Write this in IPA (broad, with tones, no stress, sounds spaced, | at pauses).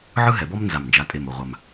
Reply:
ʕ ɯ˥ ɦ ɛ˨˦ b ɔ˥ m n z a˨˩ m n d͡ʒ a˨˦ tʼ e˨˩ m o˨˩ ʁʷ a˨˩ m